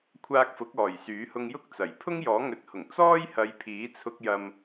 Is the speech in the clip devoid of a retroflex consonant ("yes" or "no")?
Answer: yes